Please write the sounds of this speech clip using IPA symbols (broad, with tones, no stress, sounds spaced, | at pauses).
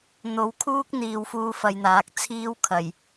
n̪ o˨ w kʰ uː˥ k̚ n̪ iː˧ w f uː˥ f ɐ˧ j n̪ aː˨˥ k̚ t͡sʰ iː˥ w kʰ ɐ˨˩ j